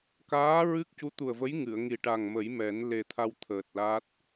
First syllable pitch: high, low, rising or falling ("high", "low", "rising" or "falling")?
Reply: rising